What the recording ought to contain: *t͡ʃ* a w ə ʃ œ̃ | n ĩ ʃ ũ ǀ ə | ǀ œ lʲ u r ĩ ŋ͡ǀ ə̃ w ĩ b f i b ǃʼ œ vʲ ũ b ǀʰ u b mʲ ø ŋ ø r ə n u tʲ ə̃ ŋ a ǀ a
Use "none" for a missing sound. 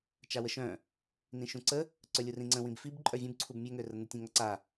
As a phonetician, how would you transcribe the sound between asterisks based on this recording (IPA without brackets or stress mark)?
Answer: t͡ʃ